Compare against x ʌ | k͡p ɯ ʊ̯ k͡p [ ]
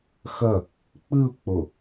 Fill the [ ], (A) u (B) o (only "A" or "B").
B